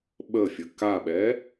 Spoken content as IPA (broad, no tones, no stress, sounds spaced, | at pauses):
ɓ ə fʲ ə k a ɓ ɛ